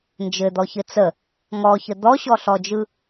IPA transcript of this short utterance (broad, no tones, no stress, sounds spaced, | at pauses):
n d͡ʒ ɘ d̪ ɔ ç ɘ t͡s ə | ŋ ɔ ç ə d̪ ɔ ɕ ɔ ɬ ɔ d͡ʒ ɯ